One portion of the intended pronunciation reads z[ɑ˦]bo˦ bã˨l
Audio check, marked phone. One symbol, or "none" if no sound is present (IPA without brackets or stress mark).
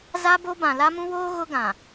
a˦